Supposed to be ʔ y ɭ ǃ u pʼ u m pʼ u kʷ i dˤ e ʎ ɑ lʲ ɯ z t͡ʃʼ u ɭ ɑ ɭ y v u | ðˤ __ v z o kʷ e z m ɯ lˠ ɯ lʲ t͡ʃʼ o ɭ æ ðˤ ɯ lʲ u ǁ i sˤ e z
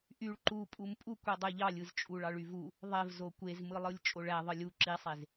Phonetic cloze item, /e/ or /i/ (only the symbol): e